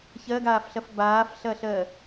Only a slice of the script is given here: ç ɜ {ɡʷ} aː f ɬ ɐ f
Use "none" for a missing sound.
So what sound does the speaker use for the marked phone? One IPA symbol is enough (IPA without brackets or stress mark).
ɡ